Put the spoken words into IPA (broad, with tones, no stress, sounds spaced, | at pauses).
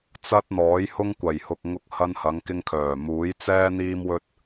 t͡s ɐ˥ t̚ n̪ ɔː˨˥ j h ʊ˥ ŋ kʷ ɐ˨˩ j h ʊ˨ k̚ ŋ ʊ˧ k̚ h ɐ˧ n h ɐ˨˧ ŋ k ɪ˧ ŋ kʰ œː˨˩ m uː˨˥ j t͡s ɛː˥ n̪ iː˥ m w ɵ˥ t̚